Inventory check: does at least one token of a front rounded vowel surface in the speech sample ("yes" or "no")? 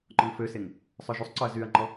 yes